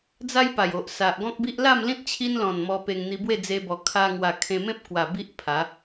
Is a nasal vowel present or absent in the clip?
present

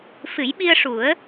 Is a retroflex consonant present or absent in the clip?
present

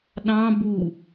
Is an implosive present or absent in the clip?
present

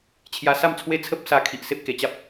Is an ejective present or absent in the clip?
absent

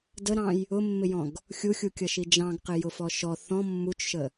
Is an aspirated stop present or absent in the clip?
absent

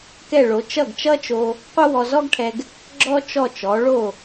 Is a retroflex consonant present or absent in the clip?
present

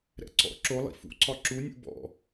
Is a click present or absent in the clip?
present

